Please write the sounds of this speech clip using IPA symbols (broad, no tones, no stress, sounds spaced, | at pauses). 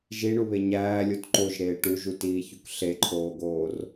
ʒ i ɳ u β e ɲ æː lʲ o t ǃ o ʒ ɾ eː ʈ u ʒ u t iː ç u k ɬ e ǃʰ oː ɡ oː r